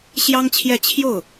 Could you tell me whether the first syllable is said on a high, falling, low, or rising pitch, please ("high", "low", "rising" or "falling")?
high